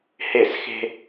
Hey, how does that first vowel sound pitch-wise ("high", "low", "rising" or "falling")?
falling